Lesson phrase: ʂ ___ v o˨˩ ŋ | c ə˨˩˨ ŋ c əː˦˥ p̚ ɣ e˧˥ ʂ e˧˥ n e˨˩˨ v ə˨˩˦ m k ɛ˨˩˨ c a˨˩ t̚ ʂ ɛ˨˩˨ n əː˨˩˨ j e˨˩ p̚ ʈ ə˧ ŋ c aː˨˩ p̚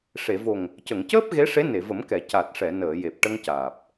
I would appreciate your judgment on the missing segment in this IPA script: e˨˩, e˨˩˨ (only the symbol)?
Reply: e˨˩˨